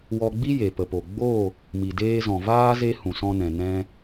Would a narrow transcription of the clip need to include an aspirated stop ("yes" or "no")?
no